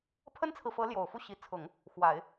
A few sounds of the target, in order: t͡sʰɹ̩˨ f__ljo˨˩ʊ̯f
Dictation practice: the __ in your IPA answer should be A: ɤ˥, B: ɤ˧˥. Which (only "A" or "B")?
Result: B